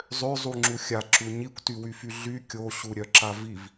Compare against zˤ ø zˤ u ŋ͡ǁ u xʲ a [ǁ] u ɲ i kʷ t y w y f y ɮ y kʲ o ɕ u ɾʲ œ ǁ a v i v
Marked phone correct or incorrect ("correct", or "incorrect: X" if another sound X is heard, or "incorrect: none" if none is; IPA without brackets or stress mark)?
correct